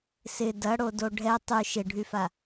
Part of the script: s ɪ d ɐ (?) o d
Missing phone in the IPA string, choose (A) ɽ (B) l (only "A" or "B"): A